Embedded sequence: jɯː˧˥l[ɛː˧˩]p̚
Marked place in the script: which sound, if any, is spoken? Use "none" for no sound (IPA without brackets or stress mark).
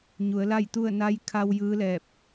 ɛː˧˩